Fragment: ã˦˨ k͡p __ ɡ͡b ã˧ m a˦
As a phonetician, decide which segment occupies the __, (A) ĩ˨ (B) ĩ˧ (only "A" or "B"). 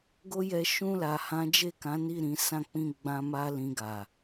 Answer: B